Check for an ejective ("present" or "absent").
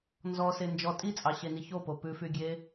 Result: present